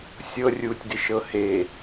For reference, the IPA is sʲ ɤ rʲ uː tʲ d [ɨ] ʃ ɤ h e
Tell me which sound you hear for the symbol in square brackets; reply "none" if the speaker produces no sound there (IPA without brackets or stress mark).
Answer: ɪ